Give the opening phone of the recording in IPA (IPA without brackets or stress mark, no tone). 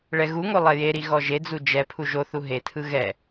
ɭ